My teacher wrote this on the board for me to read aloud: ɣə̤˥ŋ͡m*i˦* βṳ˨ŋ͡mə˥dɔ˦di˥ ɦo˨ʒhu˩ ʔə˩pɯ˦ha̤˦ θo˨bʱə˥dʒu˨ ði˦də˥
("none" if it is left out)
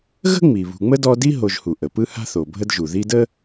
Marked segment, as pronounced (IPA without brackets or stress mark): i˩